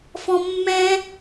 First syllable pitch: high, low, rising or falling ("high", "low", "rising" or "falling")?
high